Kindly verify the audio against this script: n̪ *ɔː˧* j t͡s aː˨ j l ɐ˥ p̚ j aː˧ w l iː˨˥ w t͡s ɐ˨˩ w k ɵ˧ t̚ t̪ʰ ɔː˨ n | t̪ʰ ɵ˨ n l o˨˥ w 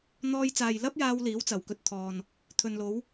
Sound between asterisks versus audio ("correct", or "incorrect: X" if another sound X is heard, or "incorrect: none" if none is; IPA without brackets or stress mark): correct